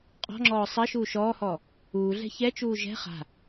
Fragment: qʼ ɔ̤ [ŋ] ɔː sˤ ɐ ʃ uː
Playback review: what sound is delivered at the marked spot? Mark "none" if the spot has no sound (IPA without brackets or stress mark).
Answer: ŋ͡ǁ